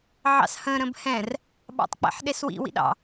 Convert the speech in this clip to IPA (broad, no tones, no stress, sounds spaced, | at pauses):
ʕ ɑ̰ s h ə̃ ɾ ə̃ b h ɛ̃ r | ɓ ɑ̰ tˤ k͡p ɛ̰ ħ ɗ e s w ḭ w ḭ ɗ ɑ̰